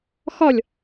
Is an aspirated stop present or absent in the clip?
absent